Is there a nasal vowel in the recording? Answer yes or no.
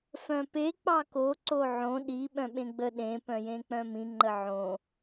yes